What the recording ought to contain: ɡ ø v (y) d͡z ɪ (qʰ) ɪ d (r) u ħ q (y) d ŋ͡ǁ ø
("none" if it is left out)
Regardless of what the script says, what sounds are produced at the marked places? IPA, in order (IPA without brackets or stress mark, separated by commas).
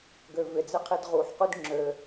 ɪ, qʰ, ʁ, y